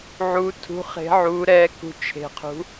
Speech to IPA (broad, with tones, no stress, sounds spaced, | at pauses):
ʕ u˧˥ tʰ ṳ˧˥ χ e̤˧˥ ʕ u˧˥ ɾ ɛ˧˥ k ṳ˦˨ t͡ʃʰ e̤˦˨ qʰ ṳ˧˥